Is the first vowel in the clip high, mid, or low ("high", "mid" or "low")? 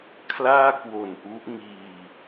low